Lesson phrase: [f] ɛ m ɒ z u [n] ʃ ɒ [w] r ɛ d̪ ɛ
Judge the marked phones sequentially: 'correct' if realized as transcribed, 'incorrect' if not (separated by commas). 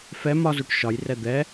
correct, incorrect, incorrect